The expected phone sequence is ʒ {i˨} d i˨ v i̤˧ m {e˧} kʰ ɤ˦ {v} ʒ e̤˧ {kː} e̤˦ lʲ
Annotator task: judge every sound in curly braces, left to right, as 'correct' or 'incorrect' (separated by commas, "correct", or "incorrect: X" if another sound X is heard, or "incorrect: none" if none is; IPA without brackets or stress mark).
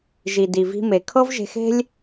correct, incorrect: e˨, correct, incorrect: x